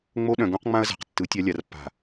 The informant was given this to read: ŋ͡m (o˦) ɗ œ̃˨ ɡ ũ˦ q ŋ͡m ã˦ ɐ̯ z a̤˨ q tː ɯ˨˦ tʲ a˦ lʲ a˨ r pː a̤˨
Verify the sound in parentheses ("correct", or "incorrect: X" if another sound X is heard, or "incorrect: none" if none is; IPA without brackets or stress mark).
correct